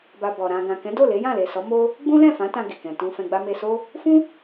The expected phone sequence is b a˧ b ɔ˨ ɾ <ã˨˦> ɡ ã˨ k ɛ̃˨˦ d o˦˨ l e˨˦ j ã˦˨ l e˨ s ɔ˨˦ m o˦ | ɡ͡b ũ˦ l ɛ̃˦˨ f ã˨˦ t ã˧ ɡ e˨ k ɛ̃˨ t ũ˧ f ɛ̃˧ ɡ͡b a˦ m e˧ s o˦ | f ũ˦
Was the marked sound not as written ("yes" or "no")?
yes